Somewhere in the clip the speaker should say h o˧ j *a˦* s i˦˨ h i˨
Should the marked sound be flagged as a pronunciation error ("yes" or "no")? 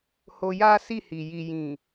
no